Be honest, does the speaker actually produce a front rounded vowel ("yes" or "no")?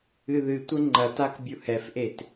no